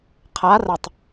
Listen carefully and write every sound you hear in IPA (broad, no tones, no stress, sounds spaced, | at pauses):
qʰ a r ə tˤ